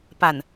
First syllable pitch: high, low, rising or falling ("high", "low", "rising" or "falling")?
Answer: low